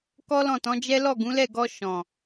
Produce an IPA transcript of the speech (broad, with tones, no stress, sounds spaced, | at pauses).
k ɔ˦ l ɔ̃˦˨ t ɔ̃˨˦ d͡ʒ ɛ˦ l ɔ˦˨ ɡ ũ˨˦ l ɛ˦˨ ɡ ɔ˧ ʃ ɔ̃˨